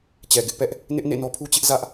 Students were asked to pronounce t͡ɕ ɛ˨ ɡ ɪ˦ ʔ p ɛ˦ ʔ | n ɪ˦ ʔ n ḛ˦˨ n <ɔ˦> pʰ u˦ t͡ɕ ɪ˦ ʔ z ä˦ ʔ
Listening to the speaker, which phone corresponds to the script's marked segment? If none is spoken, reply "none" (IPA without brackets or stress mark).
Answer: ɔ˦